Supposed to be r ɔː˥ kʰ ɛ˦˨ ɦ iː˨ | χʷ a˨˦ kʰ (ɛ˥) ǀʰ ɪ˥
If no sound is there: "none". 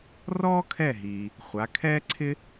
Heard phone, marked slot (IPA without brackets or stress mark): ɛː˥